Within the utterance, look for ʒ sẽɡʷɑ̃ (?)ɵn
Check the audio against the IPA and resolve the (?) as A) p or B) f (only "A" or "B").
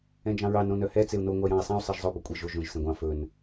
B